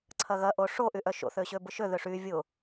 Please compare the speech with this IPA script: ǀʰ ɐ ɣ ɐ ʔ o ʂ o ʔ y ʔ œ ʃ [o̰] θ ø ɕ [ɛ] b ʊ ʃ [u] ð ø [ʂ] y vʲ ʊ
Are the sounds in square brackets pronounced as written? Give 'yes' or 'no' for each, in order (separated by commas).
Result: yes, no, no, yes